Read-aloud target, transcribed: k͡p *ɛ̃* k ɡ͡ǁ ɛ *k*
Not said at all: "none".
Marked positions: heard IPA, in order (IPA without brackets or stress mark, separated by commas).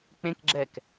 ẽ, k